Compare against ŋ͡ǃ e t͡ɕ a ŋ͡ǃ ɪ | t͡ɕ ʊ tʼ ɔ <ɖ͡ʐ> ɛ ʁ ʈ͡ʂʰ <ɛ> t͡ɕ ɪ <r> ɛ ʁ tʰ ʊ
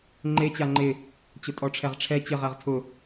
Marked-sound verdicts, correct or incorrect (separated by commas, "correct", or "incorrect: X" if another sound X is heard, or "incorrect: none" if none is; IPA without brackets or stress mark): incorrect: ʈ͡ʂʰ, correct, incorrect: ʁ